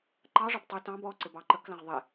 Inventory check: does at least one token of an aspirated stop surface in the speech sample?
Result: no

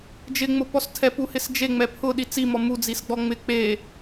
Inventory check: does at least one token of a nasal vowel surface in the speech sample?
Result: no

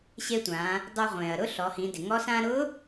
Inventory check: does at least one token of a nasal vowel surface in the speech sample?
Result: yes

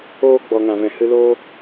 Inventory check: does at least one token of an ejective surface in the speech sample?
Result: no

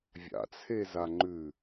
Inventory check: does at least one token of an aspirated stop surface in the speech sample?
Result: yes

